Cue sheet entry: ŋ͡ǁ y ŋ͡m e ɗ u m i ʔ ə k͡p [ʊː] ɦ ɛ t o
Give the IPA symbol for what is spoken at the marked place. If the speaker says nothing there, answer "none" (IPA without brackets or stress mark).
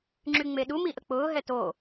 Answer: ʊː